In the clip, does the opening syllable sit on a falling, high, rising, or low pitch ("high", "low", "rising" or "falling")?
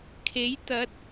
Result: rising